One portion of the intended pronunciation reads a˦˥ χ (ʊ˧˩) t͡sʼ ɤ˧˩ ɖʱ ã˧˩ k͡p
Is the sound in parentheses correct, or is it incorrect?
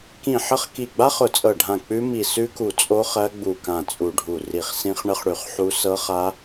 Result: correct